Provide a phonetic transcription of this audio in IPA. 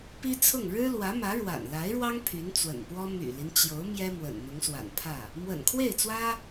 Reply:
p i˥ t͡sʰ ʊ˥˩ ŋ ɻ ɻ̩˥ l w ä˧˥ m ä˧˥ ɻ w a̰˨˩ n l a˧˥ ɪ̯ ɻ w ɑ˥ ŋ pʰ y˧˥ n t͡s w ə̰˨˩ n p w ɔ˥ m y̰˨˩ l i˦ n t͡ɕ j o˧˥ ʊ̯ m j ɛ˥ m w ə̰˨˩ n n̪ ʊ˧˥ ŋ s w a̰˨˩ n pʰ ä˥˩ | m w ə̰˨˩ n kʰ w e˥˩ ɪ̯ t͡s w ä˥

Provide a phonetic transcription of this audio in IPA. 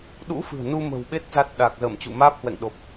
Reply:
ɗ ṵ˧˥ f ɨ̤˨˩ ə̯ n u˧ m ə̤˨˩ w ɓ e˦˥ t̚ z a˦˥ t̚ ɗ a˨˩ k̚ z əː˧˩ m t͡ɕ ṵ˧˨ m aː˦˥ p̚ h w ɛ̰˧˨ ŋ ɗ o˨˩ p̚

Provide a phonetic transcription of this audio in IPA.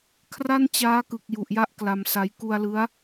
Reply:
kʰ r a˥˩ n t͡ɕ aː˦˥ k ɯ˨˩ k̚ j u˨˩ ʔ j a˦˥ ʔ k l a˧ m s a˦˥ j k u˧ a̯ l ɯ˦˥ a̯

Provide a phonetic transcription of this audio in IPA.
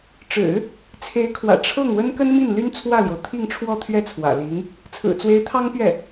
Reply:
ʈ͡ʂ ɻ̩˨˩˦ | t͡sʰ e˧˥ ɪ̯ kʰ w ä̰˨˩ ʈ͡ʂʰ ɤ˥˩ ŋ w ə˥ n k ə˥ n m i˥˩ n l y˥ n t͡sʰ w ä˥˩ l j o˩ ʊ̯ t̪ʰ i˥˧ ŋ ʈ͡ʂʰ w ɔ˥˧ t̪ʰ ɥ ɛ˥˩ t͡sʰ w ä̰˨˩ l i˧˥ ŋ | t͡sʰ ɹ̩˨˩ t͡s w e˧˥ ɪ̯ t̪ʰ ɑ˥ ŋ p ɥ ɛ˥˩

